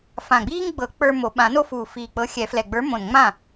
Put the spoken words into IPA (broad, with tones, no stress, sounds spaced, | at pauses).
f ã˨˩ ɡ͡b iː˦ ŋ ɡ͡b ɤ˨˩˦ k͡p ə˞˦ m o˨˩˦ ɓ ã˨˩˦ n o˦ f uː˨˩ f iː˨˩ k͡p ɤ˨˥ xʲ ɛ˨˩˦ f l ɛ˨˩ ɡ͡b ə˞˨˥ m õ˨˩ n ŋ͡m ã˥˩